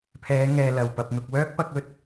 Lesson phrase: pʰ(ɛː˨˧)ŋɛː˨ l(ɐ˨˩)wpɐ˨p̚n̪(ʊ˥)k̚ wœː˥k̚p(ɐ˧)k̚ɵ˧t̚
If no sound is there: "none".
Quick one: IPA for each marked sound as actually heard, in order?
ɛː˨˧, ɐ˨˩, ʊ˨, ɐ˧

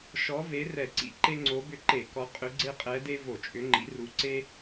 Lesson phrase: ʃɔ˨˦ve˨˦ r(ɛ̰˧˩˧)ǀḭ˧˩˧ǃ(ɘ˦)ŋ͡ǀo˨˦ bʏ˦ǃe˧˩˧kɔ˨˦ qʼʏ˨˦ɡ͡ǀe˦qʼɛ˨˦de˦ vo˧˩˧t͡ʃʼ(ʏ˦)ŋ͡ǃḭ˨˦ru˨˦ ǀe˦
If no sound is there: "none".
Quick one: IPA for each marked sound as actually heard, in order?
ɛ˧˩˧, e˦, ʏ˨˦

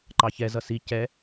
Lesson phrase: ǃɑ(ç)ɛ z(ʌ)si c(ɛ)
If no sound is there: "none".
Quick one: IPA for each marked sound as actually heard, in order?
ç, ʌ, ɛ

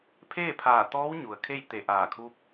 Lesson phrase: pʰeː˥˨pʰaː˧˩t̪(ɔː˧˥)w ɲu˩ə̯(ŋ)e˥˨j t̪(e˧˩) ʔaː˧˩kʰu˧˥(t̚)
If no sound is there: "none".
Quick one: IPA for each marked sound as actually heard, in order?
ɔː˧˥, kʰ, e˧˩, p̚

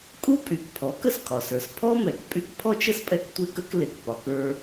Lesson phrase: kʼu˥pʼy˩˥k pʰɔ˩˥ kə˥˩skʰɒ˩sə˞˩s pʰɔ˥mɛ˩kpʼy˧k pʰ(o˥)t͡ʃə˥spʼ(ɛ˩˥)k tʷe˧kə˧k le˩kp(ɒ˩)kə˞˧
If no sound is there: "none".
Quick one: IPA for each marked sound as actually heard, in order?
ɔ˥, ɛ˧, ɒ˩

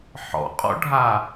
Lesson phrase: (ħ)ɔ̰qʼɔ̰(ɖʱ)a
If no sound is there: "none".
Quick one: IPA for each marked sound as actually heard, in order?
ħ, ɖʱ

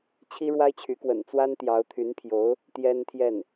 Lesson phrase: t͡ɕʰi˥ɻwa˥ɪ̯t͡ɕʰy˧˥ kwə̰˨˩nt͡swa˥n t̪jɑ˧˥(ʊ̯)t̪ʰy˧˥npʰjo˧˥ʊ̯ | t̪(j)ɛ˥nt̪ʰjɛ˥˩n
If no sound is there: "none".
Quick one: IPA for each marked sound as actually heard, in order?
ʊ̯, j

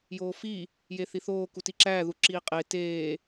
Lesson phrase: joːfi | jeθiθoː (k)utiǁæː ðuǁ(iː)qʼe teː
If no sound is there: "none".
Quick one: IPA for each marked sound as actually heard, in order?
k, iː

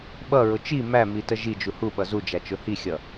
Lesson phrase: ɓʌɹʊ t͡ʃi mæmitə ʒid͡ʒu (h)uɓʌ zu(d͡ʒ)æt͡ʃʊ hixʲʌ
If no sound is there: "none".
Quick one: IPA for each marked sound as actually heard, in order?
h, d͡ʒ

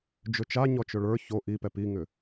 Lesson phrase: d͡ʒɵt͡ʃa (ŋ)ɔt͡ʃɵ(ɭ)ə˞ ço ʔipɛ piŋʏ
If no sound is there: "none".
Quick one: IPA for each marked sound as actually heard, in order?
ɲ, ɭ

